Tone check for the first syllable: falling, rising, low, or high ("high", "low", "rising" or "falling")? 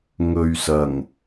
low